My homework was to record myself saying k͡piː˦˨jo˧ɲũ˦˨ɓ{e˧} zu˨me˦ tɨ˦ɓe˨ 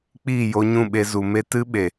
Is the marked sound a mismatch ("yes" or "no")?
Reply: no